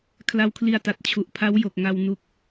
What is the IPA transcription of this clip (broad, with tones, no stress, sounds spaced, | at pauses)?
kʰ l a˧ w kʰ l i˧ a̯ t a˨˩ t̚ t͡ɕʰ u˨˩ ʔ pʰ a˦˥ w j o˨˩ k̚ ŋ a˧ w n u˦˥ k̚